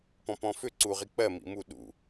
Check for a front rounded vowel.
present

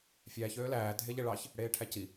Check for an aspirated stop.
present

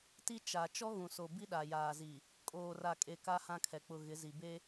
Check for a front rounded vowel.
absent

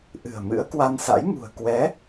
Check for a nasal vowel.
absent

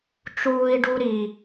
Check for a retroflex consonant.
present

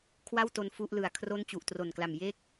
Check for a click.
absent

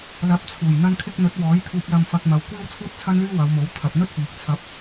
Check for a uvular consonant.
absent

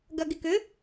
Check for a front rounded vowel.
present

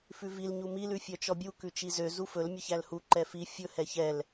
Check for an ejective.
absent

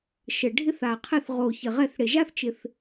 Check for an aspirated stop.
present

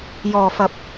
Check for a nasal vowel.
absent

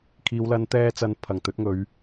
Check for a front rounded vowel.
absent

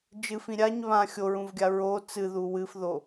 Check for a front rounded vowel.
absent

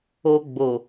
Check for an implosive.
absent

